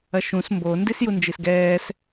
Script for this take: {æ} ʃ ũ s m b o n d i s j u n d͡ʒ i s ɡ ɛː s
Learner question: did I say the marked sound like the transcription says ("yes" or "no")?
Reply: no